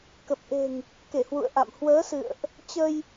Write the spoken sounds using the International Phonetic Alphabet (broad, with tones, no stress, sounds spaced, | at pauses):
k ə˨˩ p̚ ʔ e̤˨˩ ŋ | k e˧˩ h w ṵ˧˨ ə̯ ʔ a̰˧˨ m h w əː˨˦ s ɨ̰˧˨ ə̯ ʔ | t͡ɕ ə˧ j